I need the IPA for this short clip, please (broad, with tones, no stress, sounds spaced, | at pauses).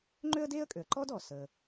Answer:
ŋ͡ǃ ø˥ ə̯ d eː˥ ə̯ kʼ ø˩ ə̯ ǃ ɔː˥ d ɔː˩ s əː˩